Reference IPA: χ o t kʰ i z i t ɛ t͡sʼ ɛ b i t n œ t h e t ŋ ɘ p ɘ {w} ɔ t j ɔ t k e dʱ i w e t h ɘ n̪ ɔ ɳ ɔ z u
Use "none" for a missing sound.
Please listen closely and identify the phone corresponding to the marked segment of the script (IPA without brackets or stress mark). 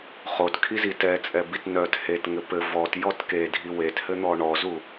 v